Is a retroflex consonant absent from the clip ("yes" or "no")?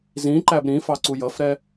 yes